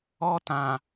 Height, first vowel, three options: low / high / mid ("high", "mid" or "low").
mid